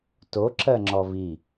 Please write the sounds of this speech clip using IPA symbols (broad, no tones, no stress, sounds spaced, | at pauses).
t o ǁ ɜ ŋ͡ǁ ɔ v i